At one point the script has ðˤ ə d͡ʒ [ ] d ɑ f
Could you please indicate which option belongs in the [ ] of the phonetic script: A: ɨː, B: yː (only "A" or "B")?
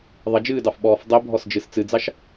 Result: A